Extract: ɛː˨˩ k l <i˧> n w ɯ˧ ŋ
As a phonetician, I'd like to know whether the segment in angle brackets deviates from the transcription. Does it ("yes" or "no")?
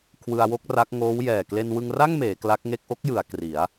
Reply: yes